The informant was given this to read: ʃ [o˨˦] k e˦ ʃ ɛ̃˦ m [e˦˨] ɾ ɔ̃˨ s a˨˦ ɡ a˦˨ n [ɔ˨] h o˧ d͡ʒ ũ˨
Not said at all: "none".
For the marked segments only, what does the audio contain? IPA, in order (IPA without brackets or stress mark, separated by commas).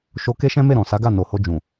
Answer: o˧, e˦˨, o˨